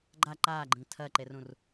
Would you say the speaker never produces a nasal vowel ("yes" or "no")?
no